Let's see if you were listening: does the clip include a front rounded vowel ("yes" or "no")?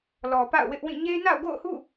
no